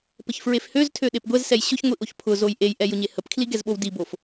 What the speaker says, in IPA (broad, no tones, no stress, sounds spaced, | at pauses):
p ə ç f ɹ e f h ø z tʰ ø ɗ e p ɡʷ ɛ z s ɛ j ɕ ʊ ç ŋʷ i ʔ o ç pʰ ʊ z o j ʔ e j ʔ ɛ j ʊ ɲ e h ə p kʰ l i ɡ ɛ z ɓ o w d i b o f